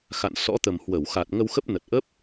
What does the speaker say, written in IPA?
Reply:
x a̰˧˨ n s ɔ̰˧˥ t̪ ə˨˩ m h w ə˧˩ w x a˨˩ t̚ ŋ ə˧ w x ə˦˥ p̚ n ə˨˩ t̚ ʔ ə˦˥ p̚

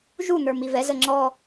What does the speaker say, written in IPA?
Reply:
ʒ u n̪ ə˞ m i v ɛ z ə ŋ͡ǁ ɔ

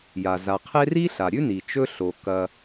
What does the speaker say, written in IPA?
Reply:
j a˩ z a˩ qʰ e˥ r i˥ ɬ a˩ ɾʲ ʉ˥ n i˩ t͡ʃ ɵ˦ ɬ o˩ k ɐ˨

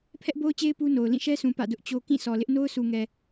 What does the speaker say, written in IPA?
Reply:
pʰ ɛ˦ ʔ b o˦ ʊ̯ t͡ɕ e˦ ɪ̯ p u˦ n o˨ ʊ̯ l ĩ˦˨ ʃ ɛ˦ sʰ ũ˨ p ä̰˦˨ d ʊ˦ ʔ t͡ɕ o˦ k ĩ˦˨ sʰ ɔ˨ l ɪ˦ ʔ n o˦ ʊ̯ sʰ u˨ ŋ ɛ˨

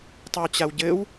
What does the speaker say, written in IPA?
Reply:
tˤ i w t͡ɕ a w ɟ ɘ w

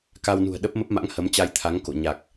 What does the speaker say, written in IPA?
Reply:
k a˧ w n ṳ˨˩ ə̯ ɗ ə˦˥ p̚ m ə˦˥ p̚ m a̰˧˥ ŋ h ə˨˦ m t͡ɕ a˧ j t̪ʰ a˨˦ ŋ k o̰˧˨ ɲ a˨˩ k̚

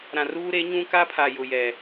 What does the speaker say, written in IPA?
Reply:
ɾ ã˨ r uː˦ ɾ e˨˦ ɲ ũ˦ k a˦ pʰ a˨ j ʊ˨ j ɛ˨

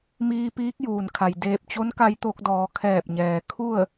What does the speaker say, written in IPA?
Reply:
m iː˧ p iː˧˥ k̚ j uː˩ n kʰ a˩ j d eː˧˩ p̚ t͡ɕ o˧˥ n k a˧ j t̪ o˧ k̚ d ɔː˩˧ kʰ ɛː˧˩ p̚ ɲ ɛː˩ kʰ u˥˨ ə̯

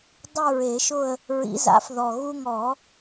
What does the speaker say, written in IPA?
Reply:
dˤ u˦˨ ɹ e˨˩˦ ʃ ʊ˦˨ ə̯ | ɹ ḭ˨˩˦ z a̰˩˥ f ð ɔ˨˩ ɣ u˦˨ ŋ ɔ˨˩˦

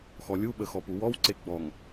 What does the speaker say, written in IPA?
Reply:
x ɔ lʲ u ɓ ə x ɔ p u w ɔ w ǀ e ɡ͡b ɔ ŋ

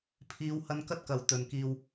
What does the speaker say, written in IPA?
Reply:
pʰ iː˨˧ w h ɐ˧ n k ɐ˥ t̚ k ɐ˨ w t̪ ɵ˨ n k iː˧ w

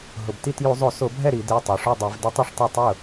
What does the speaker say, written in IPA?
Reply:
ɦ ʊ˩ b t i˥˩ t j u˧˩˧ zˤ o˧˩˧ s o˧˩˧ bʱ ɛ˥˩ ɾ i˧˩˧ d e˩˧˩ tˤ o˩˧ ʂ u˥˩ dˤ i˧˩˧ v d ɪ˧˥ tˤ ɪ˥˩ ʂ tˤ ɛ˥˩ tˤ ʊ˥˩

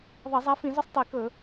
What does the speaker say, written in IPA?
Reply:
ðˤ ɐ˧˩˧ zˤ a˨˦ f ĩ˧˩˧ z ɵ˦ sˤ tˤ i˧˩˧ k ɵ˧˩˧

